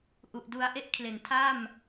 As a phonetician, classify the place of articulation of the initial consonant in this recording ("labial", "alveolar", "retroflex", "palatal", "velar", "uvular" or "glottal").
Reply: glottal